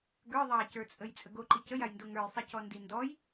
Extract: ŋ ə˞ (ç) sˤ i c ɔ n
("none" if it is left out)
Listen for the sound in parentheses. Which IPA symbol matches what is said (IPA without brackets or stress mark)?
j